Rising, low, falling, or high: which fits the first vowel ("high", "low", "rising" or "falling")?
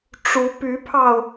rising